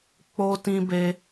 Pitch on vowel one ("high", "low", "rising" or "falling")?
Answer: high